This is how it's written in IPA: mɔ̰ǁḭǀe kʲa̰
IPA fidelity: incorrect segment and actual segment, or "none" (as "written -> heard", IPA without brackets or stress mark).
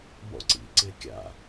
ǁ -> ǀ